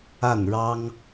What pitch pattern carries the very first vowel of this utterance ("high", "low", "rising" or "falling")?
falling